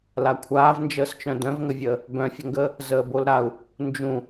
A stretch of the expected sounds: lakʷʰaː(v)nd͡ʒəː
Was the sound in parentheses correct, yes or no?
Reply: yes